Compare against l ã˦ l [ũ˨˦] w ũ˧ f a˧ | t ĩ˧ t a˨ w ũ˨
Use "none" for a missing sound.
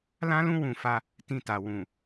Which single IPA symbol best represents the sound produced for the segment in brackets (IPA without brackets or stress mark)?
ũ˦